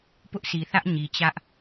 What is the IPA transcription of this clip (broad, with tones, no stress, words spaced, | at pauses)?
pʊ˦ʔsʰi˨θä˦ʔ ɲi˨t͡ɕä˦ʔ